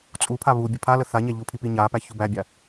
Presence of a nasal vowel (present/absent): absent